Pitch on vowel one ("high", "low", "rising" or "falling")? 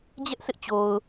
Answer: high